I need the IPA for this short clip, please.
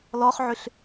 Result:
lɔχʕʏɬ

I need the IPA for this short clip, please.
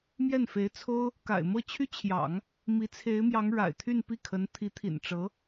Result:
mjɛ˥˩nfe˧˥ɪ̯t͡sʰo˥ʊ̯ | ka̰˨˩ɪ̯mɤ˥˩t͡ɕʰy˥t͡ɕʰjɑ̰˨˩˦ŋ | mi˧˥t͡sʰe˧˥ɪ̯mjɑ˧˥ŋ ɻa̰˨˩ɪ̯t̪ʰy˥˧npi˥˩kʰə˧˥n t̪ʰi˧˥t̪ʰḭ˨˩nʈ͡ʂɤ˧˥

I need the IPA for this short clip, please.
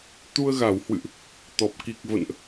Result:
t̪u˧ə̯ɣa˧˩whwɨ̰˧˨ʔ | t̪ɔ˨˩p̚ ki˨˩k̚və̰˧˨nʔ

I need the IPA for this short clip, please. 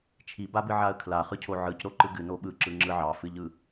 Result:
t͡ʃʰibabɨʕaə̯ kʰlaχɯcʰo ʕɯcɾoǃɯ ɡɨno ɓɯǁɯŋ͡ǁɯ ʕɑfɨʎɯ

